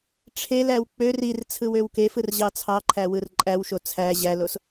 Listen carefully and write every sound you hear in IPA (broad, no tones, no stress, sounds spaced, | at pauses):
ʈ͡ʂʰ e l æ w k͡p ø r i r t͡sʰ ɯ w ø w k e f ɯ r ʑ ɑ t͡sʰ ɑ ǃʰ æ w ɯ r ǃʼ æ w ʃ o t͡sʰ æ ʑ æ l o s